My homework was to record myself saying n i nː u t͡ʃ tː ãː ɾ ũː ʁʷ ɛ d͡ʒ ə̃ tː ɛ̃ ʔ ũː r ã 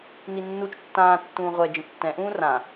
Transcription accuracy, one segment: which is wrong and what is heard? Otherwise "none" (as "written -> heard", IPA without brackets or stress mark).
ɾ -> tː